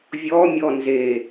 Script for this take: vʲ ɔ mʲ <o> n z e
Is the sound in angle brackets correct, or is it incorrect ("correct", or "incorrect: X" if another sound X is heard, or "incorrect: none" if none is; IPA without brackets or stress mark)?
incorrect: ɔ